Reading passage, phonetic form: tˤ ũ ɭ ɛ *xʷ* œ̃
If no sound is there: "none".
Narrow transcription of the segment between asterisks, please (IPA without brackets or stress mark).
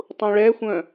xʷ